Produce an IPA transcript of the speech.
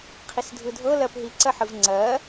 qʰisdʱɯdʱɤ lɜpɦiǀɜħɯv ŋ͡ǀɜ

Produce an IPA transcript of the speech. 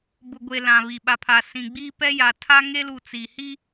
bʊ˨ɡʷe˨ lã˨βi˨ ɓa˨pʰa˨ sĩ˨ ɡ͡biː˦pɛ˦ja˨ tʰa˦ ŋe˦lu˨ t͡si˨ hi˦

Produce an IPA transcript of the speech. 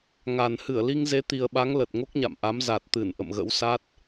ŋa˨˩n hɨ˧˩ə̯li˧ŋze˨˦ t̪i˨˩ə̯ɓa˨˦ŋ lə˨˩t̚ŋo˦˥k̚ɲa̰˧˨mʔa˨˦m za˨˩t̚t̪ɨ˧˩n ʔə̰˧˨mɣə̰˧˥wsa˦˥t̚

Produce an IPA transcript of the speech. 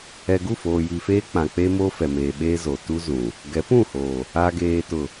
ɛ˨ɡu˦˨foː˨ji˨ feː˦k͡pã˨ k͡pe˦mo˦fɛ˨ meː˨ɓeː˦zo˨ tu˦zũ˨ | ɡɛ˨˦pũ˦˨hoː˨ | a˨ɡeː˨tʊ˨

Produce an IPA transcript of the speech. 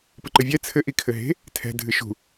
pɨǃɨvʲɛ t͡sʰɘ ʔikʰɘɦe̤ | tʰɛ̤ dʱɨʃṳ

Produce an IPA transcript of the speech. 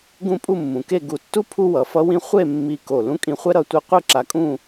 ɡũ˥˧pʼu˥˧mːũ˩˧ke˥˧ ɡu˧˩tːu˥ pʰu˥wʌ˩˧fʌ˥wĩ˥ χʷe˥˧ mːi˧ ko˧˩ lũ˥kʼĩ˧χʷɛ˥ ɾʌ˥˧tʷɯ˥ qʷɯ˥˧ǁa˧kʼũ˥˧

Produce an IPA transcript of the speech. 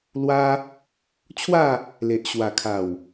lwa˦ | t͡ɕʰwa˥˧ | le˨ʔɕwa˨˩kʰa˨˩w

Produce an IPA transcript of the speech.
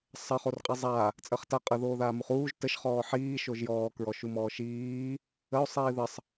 sˤə χorqʼizˤa | t͡sʼəχta qʼə ðoːðaːmuχuːʒ təʃ χɔːħiː ʃoʒjɔː kɹɔʃumɔːʃiː | əo̯ sˤiːðəsˤ

